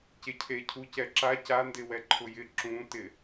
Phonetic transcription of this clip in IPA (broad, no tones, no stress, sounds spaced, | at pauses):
c e cʰ e cʰ u c ɛ ǁ a c a n d ɪ w ɛ ǃʰ ʊ j ɪ ǁ ũ t ɪ